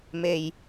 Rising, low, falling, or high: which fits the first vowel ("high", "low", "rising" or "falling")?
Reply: low